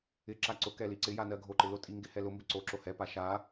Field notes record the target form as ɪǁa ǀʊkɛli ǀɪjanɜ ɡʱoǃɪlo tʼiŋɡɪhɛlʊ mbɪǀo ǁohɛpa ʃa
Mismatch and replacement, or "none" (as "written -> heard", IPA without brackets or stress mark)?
none